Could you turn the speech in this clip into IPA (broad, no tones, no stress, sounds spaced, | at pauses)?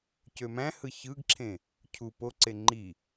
c ø m æ̃ h ɯ ç ɯ ɡ ǁʰ ẽ | cʰ u p o ǀ e ŋ͡ǃ i